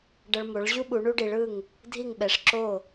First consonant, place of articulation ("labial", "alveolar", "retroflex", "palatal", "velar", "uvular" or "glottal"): retroflex